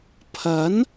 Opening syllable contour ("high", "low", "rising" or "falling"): rising